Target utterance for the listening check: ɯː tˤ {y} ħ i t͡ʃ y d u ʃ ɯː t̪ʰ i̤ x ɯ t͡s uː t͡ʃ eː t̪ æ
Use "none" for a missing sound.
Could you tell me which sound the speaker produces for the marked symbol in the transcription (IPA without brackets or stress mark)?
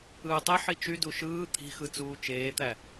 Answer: e